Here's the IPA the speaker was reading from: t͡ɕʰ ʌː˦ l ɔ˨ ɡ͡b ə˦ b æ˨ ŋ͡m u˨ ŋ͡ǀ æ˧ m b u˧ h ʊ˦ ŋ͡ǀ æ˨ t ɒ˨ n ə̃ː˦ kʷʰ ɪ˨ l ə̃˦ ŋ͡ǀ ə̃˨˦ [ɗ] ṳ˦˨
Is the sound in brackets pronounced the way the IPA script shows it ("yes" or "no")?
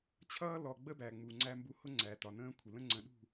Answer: yes